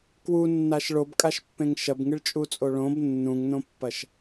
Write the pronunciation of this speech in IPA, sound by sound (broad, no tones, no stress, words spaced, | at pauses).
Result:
kwunːaʃ ɭobkʼaʃpːẽŋ ʃɐbŋɨɭt͡ʃʼut͡sʼo ɭõb nːũŋnõpːɐʃ